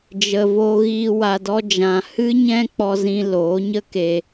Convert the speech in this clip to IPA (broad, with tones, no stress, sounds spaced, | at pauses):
d͡ʒ ə˨ v o˧ ɣ i˧ w a˨ d ɔ˧ d͡ʒ ã˨ h ɨ˦ ɲ ɛ̃˦ k͡p ɔ˦ z ĩ˦ l oː˨˦ ɲ ə˦ k e˧